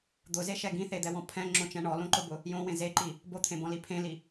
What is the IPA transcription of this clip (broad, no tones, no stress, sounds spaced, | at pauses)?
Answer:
d̪ ʊ z e ʃ ɛ ɡ ĩ θ e d̪ ɛ w ɔ̃ pʰ ɛ̃ ŋ͡ǁ õ t͡ʃ ɛ̃ ɳ ɔ l õ ǃ ʊ b ʊ | j õ w ẽ z e ǃ i | b o t̪ʰ ẽ b ɔ̃ l i pʰ ẽ l i